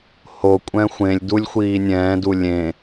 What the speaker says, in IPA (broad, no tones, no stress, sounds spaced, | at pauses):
h o kʷʼ ɛ̃ xʷ ẽ lʲ d u lʲ xʷ iː nʲ ɛ̃ː d u lʲ ẽ